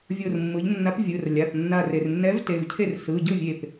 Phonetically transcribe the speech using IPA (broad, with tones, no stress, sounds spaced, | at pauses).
vʲ o˧˩ r mː ɯ˩˧ ʎ nː a˨˥ p vʲ ɯ˩˧˩ r lʲ a˩˧˩ p nː a˧˩ r e˩ r nː ɛ˨˥ v t e˩˧˩ v cʰ e˥˩ r s ɯ˩˧˩ ɟ ɯ˥˩ vʲ e˧˩ p